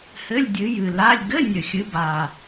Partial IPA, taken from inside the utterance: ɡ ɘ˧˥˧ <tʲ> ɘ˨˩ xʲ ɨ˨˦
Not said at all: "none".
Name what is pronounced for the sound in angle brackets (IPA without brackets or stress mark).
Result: nʲ